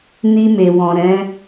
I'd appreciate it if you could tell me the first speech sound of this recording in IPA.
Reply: n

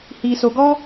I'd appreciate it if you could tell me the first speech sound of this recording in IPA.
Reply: h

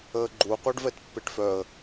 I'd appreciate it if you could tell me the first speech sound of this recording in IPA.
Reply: əː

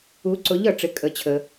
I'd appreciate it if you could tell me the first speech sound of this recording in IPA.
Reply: u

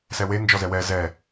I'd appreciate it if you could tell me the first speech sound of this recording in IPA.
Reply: s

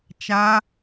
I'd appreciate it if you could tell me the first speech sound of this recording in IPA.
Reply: t͡ʃ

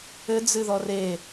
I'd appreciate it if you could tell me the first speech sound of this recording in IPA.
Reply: ɘ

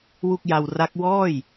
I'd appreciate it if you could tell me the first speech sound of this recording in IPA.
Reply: w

